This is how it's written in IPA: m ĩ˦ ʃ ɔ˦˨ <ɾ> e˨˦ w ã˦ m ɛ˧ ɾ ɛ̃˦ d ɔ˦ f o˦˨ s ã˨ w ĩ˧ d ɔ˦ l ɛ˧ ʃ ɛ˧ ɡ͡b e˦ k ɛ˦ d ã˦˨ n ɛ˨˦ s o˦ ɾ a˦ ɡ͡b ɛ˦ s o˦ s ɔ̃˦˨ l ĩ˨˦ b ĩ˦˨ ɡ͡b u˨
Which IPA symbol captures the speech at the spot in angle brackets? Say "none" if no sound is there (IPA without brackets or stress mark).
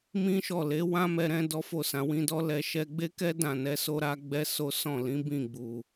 l